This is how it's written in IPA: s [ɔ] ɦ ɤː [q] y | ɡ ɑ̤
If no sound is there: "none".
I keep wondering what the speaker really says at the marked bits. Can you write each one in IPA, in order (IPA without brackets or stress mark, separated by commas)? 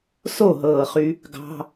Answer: o, χ